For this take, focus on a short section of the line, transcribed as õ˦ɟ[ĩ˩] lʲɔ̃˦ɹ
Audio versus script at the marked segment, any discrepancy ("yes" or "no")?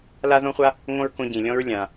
no